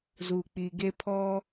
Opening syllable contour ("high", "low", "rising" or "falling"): low